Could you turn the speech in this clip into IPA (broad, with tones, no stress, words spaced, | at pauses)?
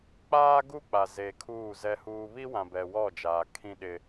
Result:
k͡paː˦ɡu˦k͡pa˨ ze˨kʰuː˦˨zɛ˦huː˦ βi˦wã˨bɛ˨ wɔ˦˨d͡ʒaː˨ kʰĩ˦ɗɪ˦